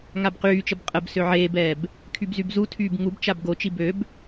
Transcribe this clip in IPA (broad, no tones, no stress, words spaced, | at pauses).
ŋabqyːt͡ʃəb qʼəbsø ʕeːbɛːb | kʰybzybzutʰyːb ŋubt͡ʃab ɡot͡ʃi bøb